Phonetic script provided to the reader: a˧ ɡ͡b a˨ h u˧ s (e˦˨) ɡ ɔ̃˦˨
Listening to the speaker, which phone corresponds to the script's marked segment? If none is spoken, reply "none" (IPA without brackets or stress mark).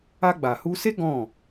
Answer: e˦